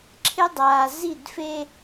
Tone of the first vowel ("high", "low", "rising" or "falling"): high